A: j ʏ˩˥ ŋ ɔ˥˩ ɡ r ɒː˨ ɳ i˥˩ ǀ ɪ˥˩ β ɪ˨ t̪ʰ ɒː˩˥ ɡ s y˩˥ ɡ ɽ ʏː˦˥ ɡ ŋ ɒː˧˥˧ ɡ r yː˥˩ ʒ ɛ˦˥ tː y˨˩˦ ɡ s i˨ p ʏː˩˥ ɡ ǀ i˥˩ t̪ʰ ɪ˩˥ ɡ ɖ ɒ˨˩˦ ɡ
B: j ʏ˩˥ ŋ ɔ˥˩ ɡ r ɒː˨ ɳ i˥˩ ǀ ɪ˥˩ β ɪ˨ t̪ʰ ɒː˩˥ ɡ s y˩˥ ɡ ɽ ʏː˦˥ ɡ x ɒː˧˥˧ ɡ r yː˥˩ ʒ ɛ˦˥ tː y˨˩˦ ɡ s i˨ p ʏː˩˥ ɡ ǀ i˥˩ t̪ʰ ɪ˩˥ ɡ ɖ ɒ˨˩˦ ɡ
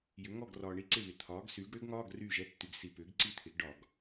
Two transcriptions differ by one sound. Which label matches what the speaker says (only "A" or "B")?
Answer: A